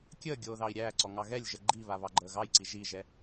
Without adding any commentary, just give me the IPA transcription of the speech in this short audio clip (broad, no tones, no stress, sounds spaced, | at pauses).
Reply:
kʲ əː ɡʲ oː ð ɑ i̯ ɾʲ æː ǀ ɔ ŋ ɑ ɣ ɛ lʲ ʒ ə ɡ͡ǃ i β a β ɑ ɡ͡ǃ əː ɣ ɑ j ǀ i ʒ i ʒ ɛ